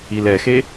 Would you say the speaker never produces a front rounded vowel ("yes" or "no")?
yes